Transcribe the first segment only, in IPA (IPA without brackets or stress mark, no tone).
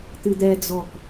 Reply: t̪